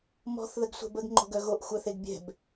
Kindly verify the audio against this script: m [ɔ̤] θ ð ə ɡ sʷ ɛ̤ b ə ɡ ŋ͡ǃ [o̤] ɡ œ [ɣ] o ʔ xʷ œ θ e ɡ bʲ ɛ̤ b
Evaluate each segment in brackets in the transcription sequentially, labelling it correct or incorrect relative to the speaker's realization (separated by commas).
correct, correct, correct